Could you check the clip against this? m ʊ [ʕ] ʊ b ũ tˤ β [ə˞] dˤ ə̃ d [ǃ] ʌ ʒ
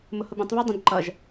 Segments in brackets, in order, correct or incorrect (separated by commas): incorrect, correct, correct